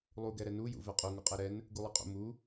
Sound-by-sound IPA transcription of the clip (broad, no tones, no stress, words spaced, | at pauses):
lˠuɡɛɾɛ nujṵ vɛqʼu ŋuqʼɛɾɛn | ɡulˠɛqʼṵ mu